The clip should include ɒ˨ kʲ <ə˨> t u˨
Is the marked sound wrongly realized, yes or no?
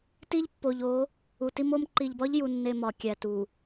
yes